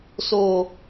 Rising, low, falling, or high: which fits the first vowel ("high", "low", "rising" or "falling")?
low